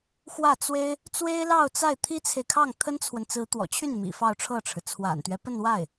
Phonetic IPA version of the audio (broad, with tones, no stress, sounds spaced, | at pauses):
x w ä˥˩ t͡s w e˥ ɪ̯ | t͡s w e˥ ɪ̯ l ɑ˥˧ ʊ̯ t͡s a˥˩ ɪ̯ t̪ʰ i˥ t͡sʰ e˨ ɪ̯ kʰ ɑ˥˩ ŋ t̪ʰ ə˥ n t͡sʰ w ə˨ n t͡s ɹ̩˧˥ t̪ w ɔ̰˨˩ t͡ɕʰ y˥˩ n m ḭ˨˩ f ɑ˥˧ ʊ̯ ʈ͡ʂʰ ɤ˥˩ ʈ͡ʂʰ ɻ̩˩ t͡sʰ w a̰˨˩ n t̪ ɥ ɛ˦ p ə˥˧ n w a˥˩ ɪ̯